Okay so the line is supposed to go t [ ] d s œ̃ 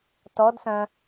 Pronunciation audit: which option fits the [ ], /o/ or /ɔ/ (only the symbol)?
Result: ɔ